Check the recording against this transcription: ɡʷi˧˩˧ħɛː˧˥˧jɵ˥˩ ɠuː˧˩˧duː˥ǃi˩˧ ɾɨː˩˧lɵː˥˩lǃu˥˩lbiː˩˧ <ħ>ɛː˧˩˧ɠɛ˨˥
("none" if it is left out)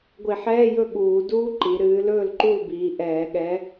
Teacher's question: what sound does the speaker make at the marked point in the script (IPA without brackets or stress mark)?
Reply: ʔ